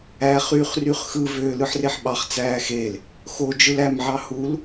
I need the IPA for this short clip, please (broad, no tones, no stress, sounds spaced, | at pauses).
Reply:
æː χ yː χ r y χ x ɯ v øː l ɯ ħ r e ħ ɓ ɑ χ t͡s æː x e l | x o d͡ʒ ɯ l æ m ʕ ɑ h u l